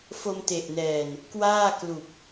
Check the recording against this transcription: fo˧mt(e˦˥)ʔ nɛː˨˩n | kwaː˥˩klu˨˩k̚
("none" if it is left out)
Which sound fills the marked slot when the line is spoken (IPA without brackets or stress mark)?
e˨˩